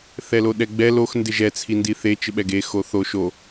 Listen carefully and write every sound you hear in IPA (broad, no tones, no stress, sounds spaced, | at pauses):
θ ɛ l o ɗ ɛ ɡ͡b ɛ l o x n d ɪ ʒ ɛ t͡sʰ i n d i θ e t͡ʃ ɪ ɓ ɛ ɡ e x o θ o ʃ o